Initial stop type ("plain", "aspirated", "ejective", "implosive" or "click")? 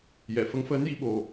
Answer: implosive